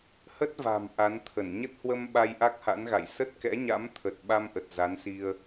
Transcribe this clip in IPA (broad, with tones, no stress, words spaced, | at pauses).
hə˦˥t̚va̤˨˩m ʔa˨˦nt̪ʰə˧˩n ɲə˦˥t̚hwə˧m ɓa˧jʔa˦˥k̚ha̰˧˥nɣa̰˧˨j sə˦˥t̚kɛ̰˧˥ɲa̰˧˥m t̪ʰə˨˩t̚ ɓa˧mʔə˨˩t̚ za˨˦nsi˧ə̯